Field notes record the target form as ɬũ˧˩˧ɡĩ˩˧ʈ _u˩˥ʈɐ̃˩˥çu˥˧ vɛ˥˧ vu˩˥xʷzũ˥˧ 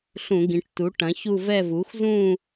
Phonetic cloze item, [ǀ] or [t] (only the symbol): t